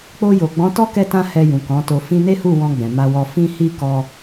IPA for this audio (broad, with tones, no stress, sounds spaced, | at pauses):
k͡p o˧ j o˨ ɡ͡b ɔ̃˨˦ t ɔ˦ k ɛ˦ t ã˦ h ɛ˧ j ũ˨ k ɔ̃˨˦ t o˧ f ĩ˧ n e˦ h u˦˨ w ɔ̃˧ ɡ͡b ɛ̃˨ m a˧ w ɔ˧ f ĩ˦ h i˦ k ɔ˦